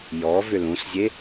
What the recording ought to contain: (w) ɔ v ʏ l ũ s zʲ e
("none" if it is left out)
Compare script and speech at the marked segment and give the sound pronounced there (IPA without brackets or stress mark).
j